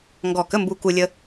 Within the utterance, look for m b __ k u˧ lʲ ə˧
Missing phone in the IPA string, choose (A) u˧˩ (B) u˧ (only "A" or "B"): B